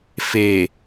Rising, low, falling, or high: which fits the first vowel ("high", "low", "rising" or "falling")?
low